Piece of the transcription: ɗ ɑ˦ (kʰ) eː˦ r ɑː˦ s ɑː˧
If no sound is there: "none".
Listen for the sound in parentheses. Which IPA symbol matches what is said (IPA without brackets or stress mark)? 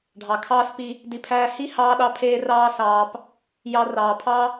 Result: pʰ